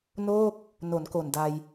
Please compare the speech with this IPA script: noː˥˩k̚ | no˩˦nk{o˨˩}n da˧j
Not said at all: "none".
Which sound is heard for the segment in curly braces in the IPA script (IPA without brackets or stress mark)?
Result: o˨˩